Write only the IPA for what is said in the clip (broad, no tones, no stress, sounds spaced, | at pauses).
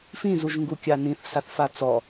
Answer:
f ĩ z u ʒ ŋ ɡ u kʲ a n ĩ θ s a θ f a t͡s ɔ